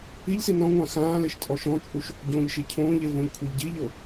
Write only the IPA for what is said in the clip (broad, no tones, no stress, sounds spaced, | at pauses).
i ʎ s i n ɔ̃ ŋʷ ã x ãː l e ʃ tʼ ɔ ʃ ɔ̃ t͡ʃʼ u ʃ | ɟ õː ʎ ʃ i cʰ õː ʎ e v õ ʎ kʷʰ e ʎ ɟ i ʎ ɤ